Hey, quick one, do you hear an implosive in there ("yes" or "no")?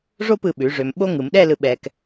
yes